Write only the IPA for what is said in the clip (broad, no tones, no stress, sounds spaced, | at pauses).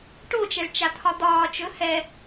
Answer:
ʈ o t͡ʃ ɛ ɭ t͡ʃ a t̪ʰ ɒ d̪ ɒː t͡ʃ ɵ h ɛ